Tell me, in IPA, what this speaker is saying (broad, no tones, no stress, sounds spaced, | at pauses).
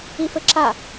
i f ɘ ǁ a